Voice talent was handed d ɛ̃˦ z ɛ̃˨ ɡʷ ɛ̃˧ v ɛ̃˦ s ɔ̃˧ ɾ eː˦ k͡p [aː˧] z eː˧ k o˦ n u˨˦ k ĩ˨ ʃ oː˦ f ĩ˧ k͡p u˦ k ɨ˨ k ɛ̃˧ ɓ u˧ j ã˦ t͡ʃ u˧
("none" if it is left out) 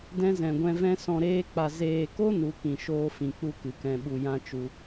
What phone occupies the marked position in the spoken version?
a˧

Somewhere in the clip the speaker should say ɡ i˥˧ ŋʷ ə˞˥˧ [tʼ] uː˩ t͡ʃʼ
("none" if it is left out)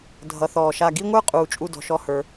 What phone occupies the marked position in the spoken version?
qʼ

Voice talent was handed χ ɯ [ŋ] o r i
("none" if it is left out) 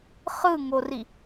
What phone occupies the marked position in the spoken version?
ŋ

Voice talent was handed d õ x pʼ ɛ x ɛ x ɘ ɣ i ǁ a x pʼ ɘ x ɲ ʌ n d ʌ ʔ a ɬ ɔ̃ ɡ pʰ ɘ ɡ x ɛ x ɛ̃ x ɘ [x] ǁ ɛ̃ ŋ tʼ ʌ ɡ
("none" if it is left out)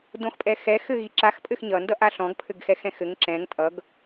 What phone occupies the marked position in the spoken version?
ŋ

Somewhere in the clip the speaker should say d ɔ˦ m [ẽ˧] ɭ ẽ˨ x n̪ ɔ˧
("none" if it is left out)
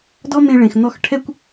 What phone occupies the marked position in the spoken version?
ẽ˧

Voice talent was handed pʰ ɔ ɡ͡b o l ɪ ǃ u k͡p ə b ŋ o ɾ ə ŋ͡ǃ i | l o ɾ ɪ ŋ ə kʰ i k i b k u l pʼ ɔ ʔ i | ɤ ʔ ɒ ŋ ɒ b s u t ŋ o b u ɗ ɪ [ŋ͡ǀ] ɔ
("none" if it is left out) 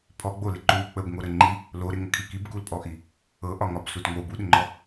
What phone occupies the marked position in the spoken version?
ŋ͡ǃ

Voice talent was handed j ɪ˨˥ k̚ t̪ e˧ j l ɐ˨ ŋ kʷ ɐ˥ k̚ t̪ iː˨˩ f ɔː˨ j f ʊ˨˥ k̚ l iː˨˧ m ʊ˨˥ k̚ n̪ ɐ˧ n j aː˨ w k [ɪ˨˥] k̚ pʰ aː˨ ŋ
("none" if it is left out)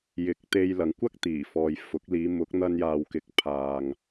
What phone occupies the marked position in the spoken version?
ɪ˨˥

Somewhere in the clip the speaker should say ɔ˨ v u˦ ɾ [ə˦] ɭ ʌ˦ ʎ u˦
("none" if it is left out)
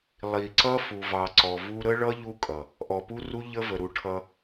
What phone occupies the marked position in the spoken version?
ə˦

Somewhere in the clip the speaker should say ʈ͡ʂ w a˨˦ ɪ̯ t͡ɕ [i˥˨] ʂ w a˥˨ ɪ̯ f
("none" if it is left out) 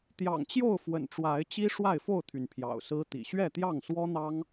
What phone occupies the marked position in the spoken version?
i˦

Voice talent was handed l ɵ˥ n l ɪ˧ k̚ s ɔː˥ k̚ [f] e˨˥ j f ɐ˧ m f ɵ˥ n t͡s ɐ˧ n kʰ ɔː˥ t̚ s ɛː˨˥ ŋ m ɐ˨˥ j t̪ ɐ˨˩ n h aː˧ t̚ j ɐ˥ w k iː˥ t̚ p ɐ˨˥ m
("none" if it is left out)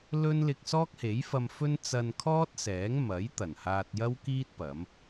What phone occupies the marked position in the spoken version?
h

